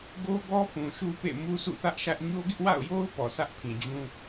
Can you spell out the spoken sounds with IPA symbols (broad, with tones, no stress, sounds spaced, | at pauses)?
ɡ o˦ ɡ ɔ˦ p ũ˨ ʃ u˦ p ḛ˦˨ m u˦ sʰ ṵ˦˨ θ ä˦ ʔ ʃ ä˦ ʔ ɲ o˦ ɡ ɪ˦ ʔ w a̰˦˨ ʊ̯ j o˦ ʊ̯ p ɔ˨ sʰ ä˦ ʔ pʰ ĩ˨ d͡ʑ ũ˦